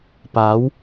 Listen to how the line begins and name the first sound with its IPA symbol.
p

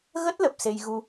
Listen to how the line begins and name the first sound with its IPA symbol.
ɣ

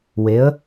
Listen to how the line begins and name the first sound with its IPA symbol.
w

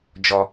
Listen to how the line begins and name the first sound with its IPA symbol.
d͡ʒ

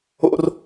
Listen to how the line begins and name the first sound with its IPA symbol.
o̰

